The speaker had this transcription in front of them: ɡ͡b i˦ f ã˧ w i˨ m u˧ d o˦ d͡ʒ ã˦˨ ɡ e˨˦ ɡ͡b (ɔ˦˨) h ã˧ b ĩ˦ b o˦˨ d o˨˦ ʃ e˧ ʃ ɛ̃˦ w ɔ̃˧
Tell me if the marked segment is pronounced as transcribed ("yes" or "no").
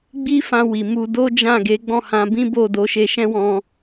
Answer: no